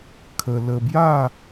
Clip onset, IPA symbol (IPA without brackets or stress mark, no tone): kʰ